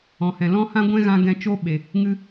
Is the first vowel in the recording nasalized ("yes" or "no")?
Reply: yes